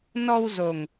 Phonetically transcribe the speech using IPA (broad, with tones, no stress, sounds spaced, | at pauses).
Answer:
n ɔ˧ w z o˨˩ ŋ